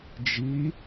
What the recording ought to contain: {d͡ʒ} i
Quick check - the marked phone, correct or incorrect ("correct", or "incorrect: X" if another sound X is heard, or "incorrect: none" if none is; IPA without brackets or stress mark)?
correct